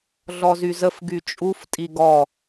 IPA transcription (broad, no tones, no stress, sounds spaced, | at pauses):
ɮ ɔ z y z ə f ɡ y t͡ʃʼ u f tʼ i ɡ ɔ